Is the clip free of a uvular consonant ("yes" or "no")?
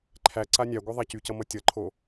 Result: yes